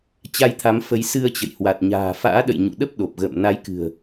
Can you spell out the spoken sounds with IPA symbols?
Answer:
t͡ɕ a˧ j t̪ʰ a˨˦ m f ə˨˦ j s ɨ˧ ə̯ t͡ɕ ə̰˧˨ j h w a˨˩ t̚ ɲ a̤ː˨˩ f a̰ː˧˥ ɗ ə̰˧˨ j ɲ ṵ˧˨ ɗ ə˦˥ p̚ ɗ o˨˩ p̚ ɣ ə̰ː˧˨ m n a˨˦ j k ɨ̤˨˩ ə̯

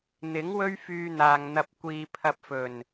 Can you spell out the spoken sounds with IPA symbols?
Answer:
n̪ ɪ˨˥ ŋ w ɵ˥ ɥ f yː˧ n̪ aː˨ ŋ n̪ ɐ˧ p̚ kʷ iː˨ pʰ ɐ˧ p̚ f ɵ˨˩ n

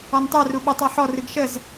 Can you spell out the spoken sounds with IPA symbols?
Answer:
ɔ n tˤ ɛ r u ɓ u tˤ ɔ ħ ɔ r ɨ ɡ ʃ ə z

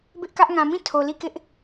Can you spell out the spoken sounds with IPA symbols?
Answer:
b ɪ˦ ʔ k ä˦ ʔ ŋ ã˨ m ĩ˦˨ tʰ o˨ l i˦˨ k ɪ˦ ʔ

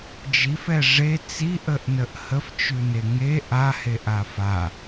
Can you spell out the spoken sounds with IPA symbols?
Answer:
d͡ʒ i f ɛ ʐ e t͡s i ʔ ə ʔ n ə ʔ h ə f t͡ʃ ʉ n e ŋ e ʔ a h e ʔ a f a

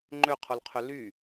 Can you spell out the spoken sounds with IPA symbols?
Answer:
ŋ͡ǃ ø qʰ o l qʰ ø l y

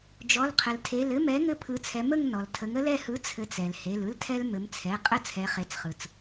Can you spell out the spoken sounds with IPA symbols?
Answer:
d͡ʒ ɔ˩˧˩ l qʰ ə˩ l tʰ e˩˧˩ l ɘ˦ m ɛ˨˥ ŋ ɘ˦˨ pʰ ɯ˩˧ t͡sʰ ɛ˩˧ m ə˦˨ ŋ n ɔ˩ l tʰ ə˩˧ ŋ ə˦ l ɛ˦˨ h ɯ˨˥ t͡sʰ ɘ˩˧ t͡s ɛ˩ l h e˩˧˩ l ɯ˦ l tʰ ɛ˦ l m ɘ˩˧ m t͡sʰ ɛ˩˧˩ qʼ ə˦ t͡sʰ ɛ˩˧ χ e˩˧˩ t͡s χ ɯ˩ t͡s

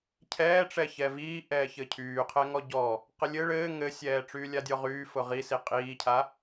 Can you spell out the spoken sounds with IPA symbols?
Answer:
cʰ ɛː ʈ͡ʂ ɛ ç ɛ v iː ʔ ɛː ç ɘ cʰ yː qʰ ɛ ŋ ɔ ɟ ɔ | q ɘ lʲ ɘ ɭ ɘː ŋ ɘ sʲ ɛː ʈ͡ʂ yː lʲ a dʲ ɔ ʁ yː f ʊ ʁ i s i qʼ iː cʰ a

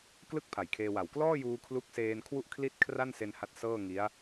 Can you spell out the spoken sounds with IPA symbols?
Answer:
k l ɯ˥˩ k̚ pʰ a˨˩ j kʰ eː˧ w a˨˩ w k l ɔː˥˩ j uː˧ kʰ l u˦˥ k̚ s eː˧ n kʰ w u˥˩ ʔ kʰ l i˥˩ t̚ kʰ r a˥˩ n s e˧ n h a˦˥ t̚ s ɤː˥˩ ŋ i˦˥ a̯

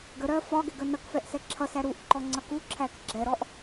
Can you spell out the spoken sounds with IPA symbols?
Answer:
ɡ ə ɾ ɜ f ɒ ɡ ɛ ɡ ə n ʌ k f ɛ ʔ s ɛ ǁʰ ʌ s æ ɾ u ʔ ǃ ɔ ŋ͡ǀ ʌ k u ǁʰ æ k ɡ͡ǁ ɛ ɾ ɔ ʔ

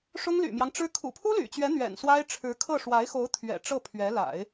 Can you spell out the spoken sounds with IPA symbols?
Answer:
ʂ ʊ˥ ŋ l y̰˨˩ m j ɑ˦ ŋ ʈ͡ʂ ɻ̩˥ kʰ ṵ˨˩ pʰ u˥ l y̰˨˩ t͡ɕ ɥ ɛ˧˥ n̪ ɥ ɛ̰˨˩ n s w a˥ ɪ̯ ʈ͡ʂʰ ɻ̩˧˥ kʰ ɤ˥˩ ʂ w a˧˥ ɪ̯ x o˧˥ ʊ̯ t̪ʰ ɥ ɛ̰˨˩ ʈ͡ʂ ɤ˥˩ pʰ ɥ ɛ˧˥ l a̰˨˩˦ ɪ̯

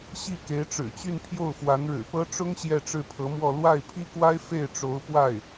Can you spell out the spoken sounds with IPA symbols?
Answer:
ɕ i˥˩ k e˧˥ ɪ̯ ʈ͡ʂ ɻ̩˨˩ t͡ɕ y˥˧ n pʰ j o˥˩ ʊ̯ f w a˧˥ n ɻ ɻ̩˨˩ p ɤ˥ ʈ͡ʂ ʊ˥ ŋ ɕ j ɛ˥˧ ʈ͡ʂ ɻ̩˥˩ pʰ ɤ˧˥ m w ɔ˥˧ l w a˥˩ ɪ̯ pʰ i˥ k w a˥ ɪ̯ f e˥˩ ɪ̯ ʈ͡ʂ o˧˥ ʊ̯ p w a˥˩ ɪ̯

